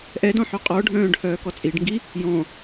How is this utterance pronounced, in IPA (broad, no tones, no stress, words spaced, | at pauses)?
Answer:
ʔɛdɔ̃ħœ qʼɔɖʱœ̃ːɖhœːkɔ t͡sʼiɖŋɡi | jɔ̃